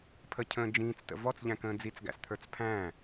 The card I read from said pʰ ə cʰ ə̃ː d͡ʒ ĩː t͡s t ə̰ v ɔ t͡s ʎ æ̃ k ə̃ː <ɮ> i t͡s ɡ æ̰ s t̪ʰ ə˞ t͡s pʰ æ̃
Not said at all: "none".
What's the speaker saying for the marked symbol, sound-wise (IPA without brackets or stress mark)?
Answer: d͡z